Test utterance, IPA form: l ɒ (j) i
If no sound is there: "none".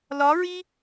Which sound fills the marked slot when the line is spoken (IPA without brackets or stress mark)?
ɹ